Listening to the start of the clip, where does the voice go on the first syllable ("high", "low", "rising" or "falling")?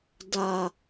high